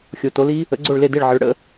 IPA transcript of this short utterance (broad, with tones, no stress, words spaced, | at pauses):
xʲo˩˥to˩˥li˦˥ | ə̰˩˥ɡ͡ǀo˥˩ɭle˥˩de˥˩ɭ ʕə˩˥ɭ ɽə̰˩˥